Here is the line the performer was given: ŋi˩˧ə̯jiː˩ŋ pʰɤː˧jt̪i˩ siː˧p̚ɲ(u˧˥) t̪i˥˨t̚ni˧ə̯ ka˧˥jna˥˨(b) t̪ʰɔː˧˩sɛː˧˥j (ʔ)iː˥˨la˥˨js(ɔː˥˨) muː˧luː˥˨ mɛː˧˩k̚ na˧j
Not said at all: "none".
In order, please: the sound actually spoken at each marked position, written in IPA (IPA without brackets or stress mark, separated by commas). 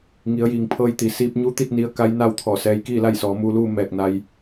u˧˥, w, k, ɔː˩˧